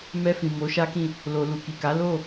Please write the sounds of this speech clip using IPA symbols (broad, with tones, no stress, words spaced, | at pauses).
mɛ˧fĩ˨ mo˨˦ʃa˦kĩ˦˨ | lo˨ lu˨ki˨ka˨˦ lo˦˨